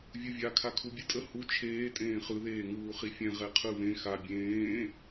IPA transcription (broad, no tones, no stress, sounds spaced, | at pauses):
vʲ u vʲ a kʰ a kʰ u bʲ ɯ tʼ ə h u t͡ʃʰ eː tʼ ẽː χ ɯ ð eː ŋ uː χ i fʲ ɛ̃ ʁ ɛ qʰ ɯ β ẽ x a bʲ ẽː